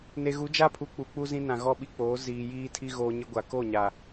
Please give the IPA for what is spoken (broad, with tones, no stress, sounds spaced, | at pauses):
n e˨ ɣ u˨˦ d͡ʒ a˦ pʰ u˨ k͡p u˨ k͡p u˦ z ĩ˦ n ã˨ ɣ ɔ˦ ɓ i˦ k͡p oː˨˦ z iː˨ j iː˦ tʰ i˦ ɣ oː˦ ɲ ɪ˦ ɡʷ a˨ k o˦˨ ɲ a˨